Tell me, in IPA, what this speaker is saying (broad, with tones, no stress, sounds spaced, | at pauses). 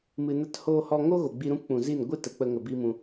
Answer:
m ɨ˨ n ə˧ t h oː˧ h ɔ˧ ŋ o˦ ɣ o˨ ɡ͡b i˧ ɾ ũ˦ p k͡p ũ˨ z i˦˨ n ɡʷ ɨ˦ t ə˨ k͡p ə˧ ŋ ə˧ b iː˦ m ũ˧